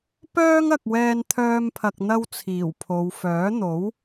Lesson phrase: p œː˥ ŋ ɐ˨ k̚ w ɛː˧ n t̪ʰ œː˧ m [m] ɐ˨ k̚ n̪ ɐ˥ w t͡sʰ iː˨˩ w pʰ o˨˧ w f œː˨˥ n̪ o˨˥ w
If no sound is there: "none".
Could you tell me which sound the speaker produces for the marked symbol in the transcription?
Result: pʰ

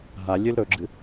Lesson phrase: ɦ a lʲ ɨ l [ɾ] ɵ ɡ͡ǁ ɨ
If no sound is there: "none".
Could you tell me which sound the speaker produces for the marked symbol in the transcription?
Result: ɾ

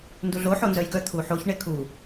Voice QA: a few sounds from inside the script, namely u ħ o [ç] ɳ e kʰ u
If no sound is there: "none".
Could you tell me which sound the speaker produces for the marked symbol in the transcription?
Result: ç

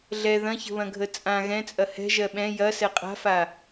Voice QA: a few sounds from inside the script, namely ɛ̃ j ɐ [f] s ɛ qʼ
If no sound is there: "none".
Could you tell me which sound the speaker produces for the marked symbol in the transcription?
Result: none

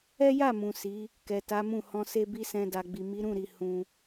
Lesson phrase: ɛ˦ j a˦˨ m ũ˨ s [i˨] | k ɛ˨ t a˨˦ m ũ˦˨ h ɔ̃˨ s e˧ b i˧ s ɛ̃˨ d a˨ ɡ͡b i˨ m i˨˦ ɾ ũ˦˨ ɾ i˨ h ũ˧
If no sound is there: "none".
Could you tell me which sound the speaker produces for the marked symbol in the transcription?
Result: i˨˦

